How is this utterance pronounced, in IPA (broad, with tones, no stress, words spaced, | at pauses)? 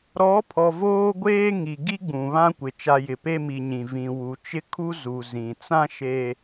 ɾɔ˨˦pʰɔ˨ voː˦ɡʷeː˦ŋi˨ ɡi˦ɡ͡bũ˨ βã˦kʷɪ˨ t͡ʃa˨ jɪ˨pe˦mi˨ɲĩ˨ vĩ˨ wu˨t͡ʃɪ˦ kʰu˦zu˨ zĩ˨ t͡sã˦ʃe˨